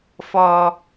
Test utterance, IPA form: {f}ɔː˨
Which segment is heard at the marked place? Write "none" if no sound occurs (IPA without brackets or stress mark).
f